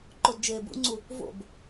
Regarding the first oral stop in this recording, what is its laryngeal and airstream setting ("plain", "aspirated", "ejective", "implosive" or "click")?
click